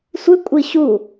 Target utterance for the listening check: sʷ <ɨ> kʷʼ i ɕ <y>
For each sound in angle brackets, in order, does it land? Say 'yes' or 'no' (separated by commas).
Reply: yes, no